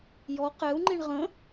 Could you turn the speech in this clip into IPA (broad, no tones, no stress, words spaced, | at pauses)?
jɔ qɛu̯ŋ͡ǃiɳ ʁə̃